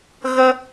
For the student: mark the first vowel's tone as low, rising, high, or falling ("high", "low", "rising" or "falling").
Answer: high